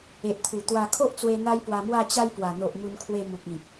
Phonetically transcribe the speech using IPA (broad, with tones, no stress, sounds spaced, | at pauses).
e˨ ʔ t̪ʰ u˨˩ t̪ w a˧ kʰ o˦ ʔ t͡s w e˧ n̪ a˦ j p w a˧ m w a˥˧ t͡ɕ a˧ j p w a˨˩ n̪ o˨ ʔ m u˧ n kʰ w e˧ m u˨ k̚ ĩ˨ k̚